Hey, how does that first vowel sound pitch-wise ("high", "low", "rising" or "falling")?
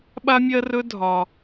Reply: high